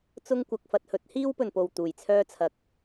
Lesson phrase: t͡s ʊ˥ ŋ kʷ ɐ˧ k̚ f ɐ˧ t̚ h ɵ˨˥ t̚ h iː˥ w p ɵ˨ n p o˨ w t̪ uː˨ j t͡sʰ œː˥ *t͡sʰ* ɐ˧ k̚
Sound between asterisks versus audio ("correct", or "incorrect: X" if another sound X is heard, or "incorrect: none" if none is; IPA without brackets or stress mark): correct